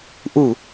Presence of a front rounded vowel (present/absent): absent